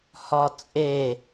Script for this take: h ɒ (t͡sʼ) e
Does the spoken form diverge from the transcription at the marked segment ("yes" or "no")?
no